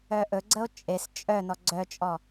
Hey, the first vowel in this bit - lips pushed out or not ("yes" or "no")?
yes